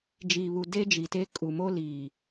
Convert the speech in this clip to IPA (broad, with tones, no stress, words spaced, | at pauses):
d͡ʒiː˨βu˨de˦ d͡ʒi˨te˦ kʼu˨mo˦liː˨